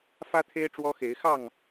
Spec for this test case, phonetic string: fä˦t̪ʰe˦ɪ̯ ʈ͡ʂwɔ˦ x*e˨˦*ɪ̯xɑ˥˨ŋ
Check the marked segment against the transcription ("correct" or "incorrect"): correct